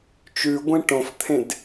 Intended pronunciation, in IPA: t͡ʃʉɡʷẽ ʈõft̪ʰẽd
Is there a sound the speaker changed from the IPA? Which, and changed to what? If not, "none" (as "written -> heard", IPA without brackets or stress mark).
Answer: none